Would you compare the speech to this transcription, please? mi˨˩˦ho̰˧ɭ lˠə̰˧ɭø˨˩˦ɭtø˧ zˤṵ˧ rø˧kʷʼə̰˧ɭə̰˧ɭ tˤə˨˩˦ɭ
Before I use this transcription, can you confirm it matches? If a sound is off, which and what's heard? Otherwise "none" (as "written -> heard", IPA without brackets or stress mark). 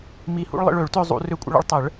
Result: o̰˧ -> ṵ˧